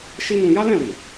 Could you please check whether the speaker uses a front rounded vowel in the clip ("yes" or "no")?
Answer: no